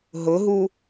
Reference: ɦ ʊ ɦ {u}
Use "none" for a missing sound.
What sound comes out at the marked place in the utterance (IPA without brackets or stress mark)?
u